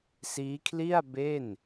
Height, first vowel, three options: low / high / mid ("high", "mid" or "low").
high